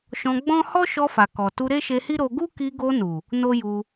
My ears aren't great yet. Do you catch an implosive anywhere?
no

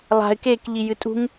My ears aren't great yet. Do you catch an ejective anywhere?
yes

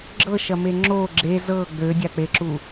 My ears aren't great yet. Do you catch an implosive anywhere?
no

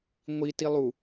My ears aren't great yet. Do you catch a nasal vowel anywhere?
no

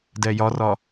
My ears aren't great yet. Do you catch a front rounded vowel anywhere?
no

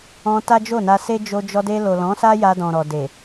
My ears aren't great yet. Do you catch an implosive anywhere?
no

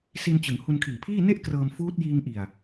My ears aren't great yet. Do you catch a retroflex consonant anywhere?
no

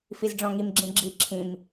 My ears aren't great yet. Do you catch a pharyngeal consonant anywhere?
no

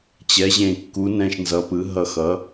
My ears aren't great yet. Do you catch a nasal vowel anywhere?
yes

